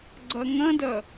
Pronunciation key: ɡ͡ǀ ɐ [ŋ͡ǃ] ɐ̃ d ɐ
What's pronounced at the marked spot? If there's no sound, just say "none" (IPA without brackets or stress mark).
ŋ